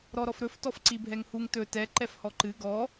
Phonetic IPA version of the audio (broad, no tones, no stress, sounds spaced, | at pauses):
ɾ ɔ ɾ ɔ f ɾ ɵ f t ɔ f ǀ i bʱ ɛ ŋ h u ŋ t ɵ t ɛ ǃ ɛ f h ɔ ǃ ɨ ɡ ɔ